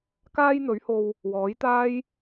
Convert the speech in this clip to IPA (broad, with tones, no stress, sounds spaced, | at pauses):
k aː˥ j n̪ ɵ˨˥ ɥ h o˧ w | w ɔː˨˥ j t̪ aː˥ j